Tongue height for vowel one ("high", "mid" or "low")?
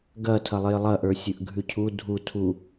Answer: low